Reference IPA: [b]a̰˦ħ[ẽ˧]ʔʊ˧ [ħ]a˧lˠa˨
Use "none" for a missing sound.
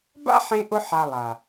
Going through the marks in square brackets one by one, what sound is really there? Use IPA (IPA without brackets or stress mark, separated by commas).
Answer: b, ẽ˧, ħ